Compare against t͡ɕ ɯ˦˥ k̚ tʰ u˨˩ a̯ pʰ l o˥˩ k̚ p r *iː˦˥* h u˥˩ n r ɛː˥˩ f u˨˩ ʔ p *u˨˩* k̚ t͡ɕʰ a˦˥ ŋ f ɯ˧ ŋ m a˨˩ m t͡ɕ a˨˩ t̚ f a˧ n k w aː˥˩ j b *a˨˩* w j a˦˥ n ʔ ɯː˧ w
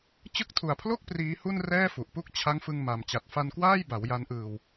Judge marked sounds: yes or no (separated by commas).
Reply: yes, no, no